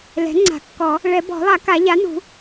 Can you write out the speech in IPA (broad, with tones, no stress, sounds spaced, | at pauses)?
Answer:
l ɛ̤˩˥ ŋ͡ǀ a̤˨˩˦ kː ɔ˨˩˦ | ɭ ɛ˨˩˦ b ɔ̤˨˩˦ lˠ a˨˩˦ k a˨˩˦ ʎ a˩˥ n ṳ˨˩˦